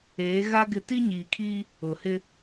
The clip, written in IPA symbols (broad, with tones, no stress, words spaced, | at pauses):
eː˨˦ɣa˦ ɡɪ˦ ti˦ɲiː˨kʰiː˦ | ʊ˨hɪ˦